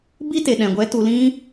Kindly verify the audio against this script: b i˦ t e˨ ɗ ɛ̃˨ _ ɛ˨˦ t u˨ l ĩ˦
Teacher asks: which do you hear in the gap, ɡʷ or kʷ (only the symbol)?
ɡʷ